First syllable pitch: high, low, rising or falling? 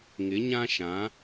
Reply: rising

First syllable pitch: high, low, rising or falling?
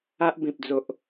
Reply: high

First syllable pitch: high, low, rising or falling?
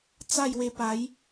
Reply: falling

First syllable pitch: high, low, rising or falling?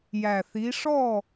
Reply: low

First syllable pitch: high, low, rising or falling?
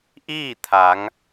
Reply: falling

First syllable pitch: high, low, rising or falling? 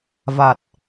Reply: low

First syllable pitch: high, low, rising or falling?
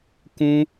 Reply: high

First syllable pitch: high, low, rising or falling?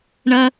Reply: high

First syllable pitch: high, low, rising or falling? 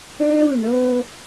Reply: falling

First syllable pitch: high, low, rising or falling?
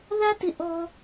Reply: high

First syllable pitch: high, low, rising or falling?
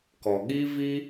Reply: low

